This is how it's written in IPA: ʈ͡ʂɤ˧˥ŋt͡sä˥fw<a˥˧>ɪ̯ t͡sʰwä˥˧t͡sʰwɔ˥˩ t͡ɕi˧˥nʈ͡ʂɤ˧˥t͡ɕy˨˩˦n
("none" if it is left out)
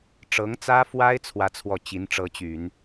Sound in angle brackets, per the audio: a˥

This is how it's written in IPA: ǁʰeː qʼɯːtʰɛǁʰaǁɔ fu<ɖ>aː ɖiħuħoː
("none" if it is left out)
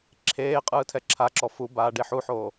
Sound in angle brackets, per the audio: b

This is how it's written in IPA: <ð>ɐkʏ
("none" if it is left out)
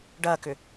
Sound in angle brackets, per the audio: ɖ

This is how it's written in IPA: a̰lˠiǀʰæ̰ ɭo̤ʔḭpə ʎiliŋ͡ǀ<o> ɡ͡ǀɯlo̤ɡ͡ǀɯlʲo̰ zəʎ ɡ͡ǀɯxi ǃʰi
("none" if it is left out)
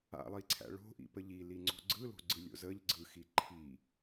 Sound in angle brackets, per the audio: o̤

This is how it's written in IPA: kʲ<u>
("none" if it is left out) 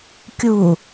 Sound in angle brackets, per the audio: u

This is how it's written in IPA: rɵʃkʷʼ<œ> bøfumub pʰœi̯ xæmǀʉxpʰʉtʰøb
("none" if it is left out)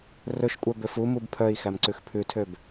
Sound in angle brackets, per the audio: œ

